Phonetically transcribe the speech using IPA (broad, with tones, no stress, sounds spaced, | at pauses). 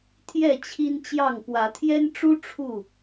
t̪ʰ j ɛ˥˨ t͡ɕʰ i˦ n t͡ɕ j ɑ˥˨ ŋ p w ä˨˦ t̪ʰ j ɛ˦ n ʈ͡ʂ u˦ ʈ͡ʂʰ u˥˨